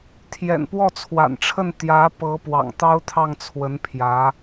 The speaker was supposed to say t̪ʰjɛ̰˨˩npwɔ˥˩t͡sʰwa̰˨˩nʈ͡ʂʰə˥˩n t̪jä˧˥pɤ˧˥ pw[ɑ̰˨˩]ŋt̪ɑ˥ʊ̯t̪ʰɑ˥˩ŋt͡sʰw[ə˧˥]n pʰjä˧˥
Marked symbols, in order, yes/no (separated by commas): yes, yes